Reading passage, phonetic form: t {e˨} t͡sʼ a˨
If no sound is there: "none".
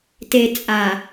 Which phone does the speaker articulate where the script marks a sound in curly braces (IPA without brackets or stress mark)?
e˨